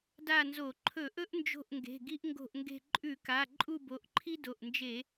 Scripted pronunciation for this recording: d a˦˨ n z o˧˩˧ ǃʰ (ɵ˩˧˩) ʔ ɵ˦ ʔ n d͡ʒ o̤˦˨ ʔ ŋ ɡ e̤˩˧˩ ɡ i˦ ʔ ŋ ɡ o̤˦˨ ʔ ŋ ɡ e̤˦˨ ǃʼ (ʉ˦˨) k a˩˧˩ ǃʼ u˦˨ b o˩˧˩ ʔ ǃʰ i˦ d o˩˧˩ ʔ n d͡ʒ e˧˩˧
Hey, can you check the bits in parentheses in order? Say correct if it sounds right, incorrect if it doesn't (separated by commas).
incorrect, incorrect